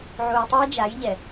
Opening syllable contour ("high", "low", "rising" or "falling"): low